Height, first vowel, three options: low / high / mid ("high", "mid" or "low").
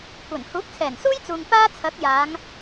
low